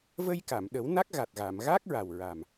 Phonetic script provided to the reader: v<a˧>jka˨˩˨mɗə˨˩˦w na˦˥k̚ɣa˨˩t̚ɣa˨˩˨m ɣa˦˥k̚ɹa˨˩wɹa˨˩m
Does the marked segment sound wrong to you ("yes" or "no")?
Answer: yes